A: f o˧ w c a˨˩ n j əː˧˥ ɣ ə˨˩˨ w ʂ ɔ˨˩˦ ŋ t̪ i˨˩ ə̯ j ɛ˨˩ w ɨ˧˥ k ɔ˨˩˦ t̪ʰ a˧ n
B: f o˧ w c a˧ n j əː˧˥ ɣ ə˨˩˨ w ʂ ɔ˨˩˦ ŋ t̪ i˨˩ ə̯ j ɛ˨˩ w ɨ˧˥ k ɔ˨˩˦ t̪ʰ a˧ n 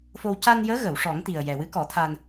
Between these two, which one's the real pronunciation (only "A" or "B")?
B